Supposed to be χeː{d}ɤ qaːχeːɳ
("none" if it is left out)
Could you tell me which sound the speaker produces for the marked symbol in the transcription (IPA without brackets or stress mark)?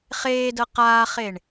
d